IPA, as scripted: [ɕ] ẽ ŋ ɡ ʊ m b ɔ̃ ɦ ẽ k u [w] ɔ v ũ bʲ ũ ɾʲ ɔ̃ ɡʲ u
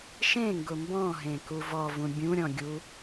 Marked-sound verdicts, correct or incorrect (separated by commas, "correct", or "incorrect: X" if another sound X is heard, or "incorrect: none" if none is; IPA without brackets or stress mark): incorrect: ʃ, incorrect: v